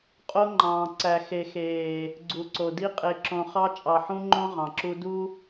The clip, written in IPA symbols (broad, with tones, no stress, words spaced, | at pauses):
qʼo˦ŋ͡ǃɑ̃ː˨ ǀæ˨ xe˨xeː˨ | ɡ͡ǀu˨ǀo˨di˦ qʼe˨ǁõ˨ χɑ˦ t͡ʃʼɑ˨ħũ˦ŋ͡ǃõ˦ ʁɑ̃˨ǁu˦ du˦